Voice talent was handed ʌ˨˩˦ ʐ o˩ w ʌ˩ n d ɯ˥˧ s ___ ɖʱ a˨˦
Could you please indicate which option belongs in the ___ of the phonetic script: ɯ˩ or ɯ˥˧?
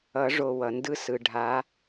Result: ɯ˩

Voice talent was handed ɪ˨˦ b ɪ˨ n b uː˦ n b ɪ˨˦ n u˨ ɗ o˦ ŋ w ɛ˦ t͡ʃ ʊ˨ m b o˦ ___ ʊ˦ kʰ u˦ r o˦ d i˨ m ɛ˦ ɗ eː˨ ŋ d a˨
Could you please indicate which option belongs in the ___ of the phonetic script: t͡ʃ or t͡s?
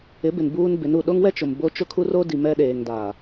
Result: t͡ʃ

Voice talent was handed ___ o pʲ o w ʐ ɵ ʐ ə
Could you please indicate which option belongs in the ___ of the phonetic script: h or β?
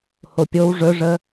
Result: h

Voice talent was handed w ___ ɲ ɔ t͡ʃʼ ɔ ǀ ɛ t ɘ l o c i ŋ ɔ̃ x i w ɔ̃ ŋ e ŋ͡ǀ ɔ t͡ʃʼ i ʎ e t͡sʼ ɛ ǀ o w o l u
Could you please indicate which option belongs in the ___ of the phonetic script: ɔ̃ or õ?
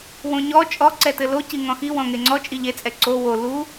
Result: õ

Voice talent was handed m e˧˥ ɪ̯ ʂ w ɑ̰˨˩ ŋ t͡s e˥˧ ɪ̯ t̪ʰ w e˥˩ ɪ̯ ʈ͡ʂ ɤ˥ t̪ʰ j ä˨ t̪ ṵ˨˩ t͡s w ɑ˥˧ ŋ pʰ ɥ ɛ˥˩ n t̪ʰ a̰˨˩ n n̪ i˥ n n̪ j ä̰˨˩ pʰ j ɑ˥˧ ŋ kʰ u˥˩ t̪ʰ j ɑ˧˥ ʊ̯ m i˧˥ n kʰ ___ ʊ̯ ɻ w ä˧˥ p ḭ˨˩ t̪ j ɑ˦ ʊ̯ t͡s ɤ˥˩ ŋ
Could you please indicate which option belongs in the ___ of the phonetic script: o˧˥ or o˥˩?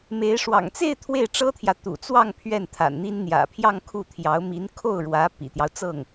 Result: o˥˩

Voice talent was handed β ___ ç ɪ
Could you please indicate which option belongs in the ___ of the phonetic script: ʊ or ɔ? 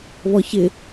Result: ɔ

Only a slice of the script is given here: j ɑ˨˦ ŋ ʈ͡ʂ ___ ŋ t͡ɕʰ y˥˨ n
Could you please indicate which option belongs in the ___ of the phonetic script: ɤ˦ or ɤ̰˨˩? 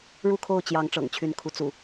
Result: ɤ̰˨˩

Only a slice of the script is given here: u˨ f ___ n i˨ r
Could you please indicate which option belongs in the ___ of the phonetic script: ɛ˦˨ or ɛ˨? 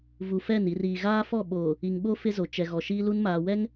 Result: ɛ˦˨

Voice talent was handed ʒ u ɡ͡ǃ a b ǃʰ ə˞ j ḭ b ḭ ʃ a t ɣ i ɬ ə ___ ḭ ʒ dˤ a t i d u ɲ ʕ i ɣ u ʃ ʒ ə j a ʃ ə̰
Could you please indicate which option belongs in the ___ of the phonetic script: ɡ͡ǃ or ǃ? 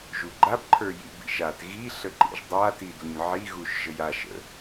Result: ǃ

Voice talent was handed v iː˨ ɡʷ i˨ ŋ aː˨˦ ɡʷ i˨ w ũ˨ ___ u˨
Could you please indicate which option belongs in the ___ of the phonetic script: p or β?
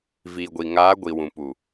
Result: p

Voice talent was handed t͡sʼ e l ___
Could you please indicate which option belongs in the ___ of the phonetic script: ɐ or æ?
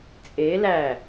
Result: æ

